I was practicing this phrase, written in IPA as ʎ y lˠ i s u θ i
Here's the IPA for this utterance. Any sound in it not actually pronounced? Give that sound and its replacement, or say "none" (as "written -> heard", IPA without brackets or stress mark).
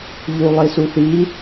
y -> u